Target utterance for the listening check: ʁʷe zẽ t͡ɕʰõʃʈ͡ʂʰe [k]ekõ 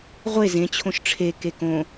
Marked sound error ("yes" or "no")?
no